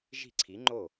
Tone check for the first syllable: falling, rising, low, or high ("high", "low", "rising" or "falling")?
falling